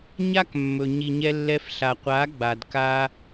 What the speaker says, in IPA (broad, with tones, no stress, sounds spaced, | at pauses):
ɲ a˦ k mː ɵ˨ ɲ i˨ ɲ ɛ˧ lː ɛ˧ f ɬ a˨ qʷ a˨˦ ɡ͡b a˨ d k a˦